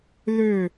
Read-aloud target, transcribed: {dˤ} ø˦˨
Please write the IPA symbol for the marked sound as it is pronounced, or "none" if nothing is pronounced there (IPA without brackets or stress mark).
ð